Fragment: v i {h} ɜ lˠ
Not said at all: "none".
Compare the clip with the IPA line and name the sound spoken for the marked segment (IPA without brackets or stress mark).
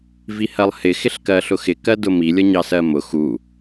h